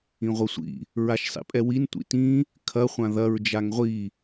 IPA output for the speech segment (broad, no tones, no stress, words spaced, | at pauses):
ĩʁʷɐsʷḭ | ɹaʃsˤḭpʼɛwin tʷḭtĩ | kʰɐ χʷãðɐɹ d͡ʒaŋʁʷi